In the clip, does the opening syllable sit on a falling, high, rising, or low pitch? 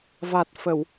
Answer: low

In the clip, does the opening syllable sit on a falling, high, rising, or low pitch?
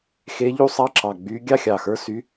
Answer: rising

